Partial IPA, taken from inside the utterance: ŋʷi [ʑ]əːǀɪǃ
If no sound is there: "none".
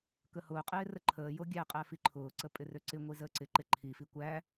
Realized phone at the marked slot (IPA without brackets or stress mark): z